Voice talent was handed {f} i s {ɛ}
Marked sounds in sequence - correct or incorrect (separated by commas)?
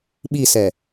incorrect, correct